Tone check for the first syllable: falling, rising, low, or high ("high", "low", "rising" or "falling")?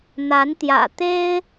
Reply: rising